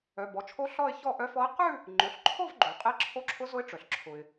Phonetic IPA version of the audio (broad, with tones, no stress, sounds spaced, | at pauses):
œ˩˧˩ b ɔ˩˧˩ t͡ʃʰ o˦˥ ɬ ɔ˥˧ ɪ̯ ç ɔ˥˧ ʔ œ˦˥ f ɔ˦˥ ɪ̯ q ʉ˥˧ | ŋ͡ǃ ʊ˩˧˩ ɬ ǃʰ o˥˧ v ɡ͡ǃ o˩ qʼ e˦˥ ǁʰ o˦˥ ǁʰ ʊ˦˥ z ʊ˦˥ ɪ̯ ʈ͡ʂ œ˩ ɬ ǁʰ ʊ˩ ɪ̯